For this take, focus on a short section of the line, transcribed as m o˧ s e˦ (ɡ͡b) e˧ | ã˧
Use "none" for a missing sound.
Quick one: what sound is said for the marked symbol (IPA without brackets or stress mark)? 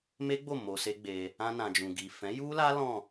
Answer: ɡ͡b